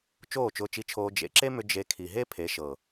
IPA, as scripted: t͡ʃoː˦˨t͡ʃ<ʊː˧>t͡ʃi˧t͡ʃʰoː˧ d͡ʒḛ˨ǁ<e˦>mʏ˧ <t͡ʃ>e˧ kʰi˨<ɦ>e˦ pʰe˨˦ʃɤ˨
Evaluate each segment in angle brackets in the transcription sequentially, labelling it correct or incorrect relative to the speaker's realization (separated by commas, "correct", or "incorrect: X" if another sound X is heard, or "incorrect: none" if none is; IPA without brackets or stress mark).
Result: correct, correct, incorrect: d͡ʒ, correct